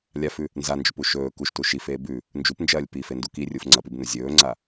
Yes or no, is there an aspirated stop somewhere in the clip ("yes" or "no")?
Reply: no